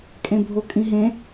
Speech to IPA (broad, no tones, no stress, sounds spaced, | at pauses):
kʼ ẽ bʱ o kʼ ĩ ɦ ẽ